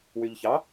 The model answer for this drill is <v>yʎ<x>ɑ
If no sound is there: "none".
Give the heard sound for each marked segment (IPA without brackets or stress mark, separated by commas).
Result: w, ç